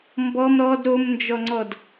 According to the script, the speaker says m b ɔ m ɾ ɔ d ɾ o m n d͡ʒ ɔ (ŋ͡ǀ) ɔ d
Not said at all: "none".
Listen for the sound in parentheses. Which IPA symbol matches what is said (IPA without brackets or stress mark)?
ŋ͡ǀ